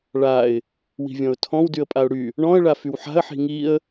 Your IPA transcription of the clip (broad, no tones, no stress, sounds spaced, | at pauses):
ɭ a ɪ̯ | w i̤ vʲ ɔ̃ ʊ̯ tʰ ɔ̃ w d y ə̯ pʼ a ʊ̯ ɽ y | ɳ ɔ̃ ə̯ ɭ a f y w ħ a̤ ə̯ ħ i̤ ŋ i ə̯